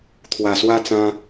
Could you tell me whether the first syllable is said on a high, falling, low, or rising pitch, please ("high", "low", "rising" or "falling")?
low